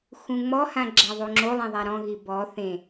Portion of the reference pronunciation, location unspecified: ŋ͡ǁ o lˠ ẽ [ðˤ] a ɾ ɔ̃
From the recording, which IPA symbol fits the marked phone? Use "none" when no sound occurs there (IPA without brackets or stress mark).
ðˤ